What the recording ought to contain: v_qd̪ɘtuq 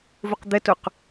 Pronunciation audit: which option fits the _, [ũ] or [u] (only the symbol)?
u